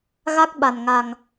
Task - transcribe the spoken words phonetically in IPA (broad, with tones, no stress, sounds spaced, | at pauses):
ɣ a˦˥ k̚ ɓ a˨˩ n ŋ a˨˩ ŋ